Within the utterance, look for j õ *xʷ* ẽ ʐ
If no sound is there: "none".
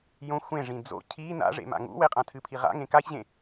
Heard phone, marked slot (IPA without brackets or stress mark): xʷ